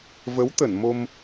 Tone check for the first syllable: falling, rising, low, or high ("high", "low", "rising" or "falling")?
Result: rising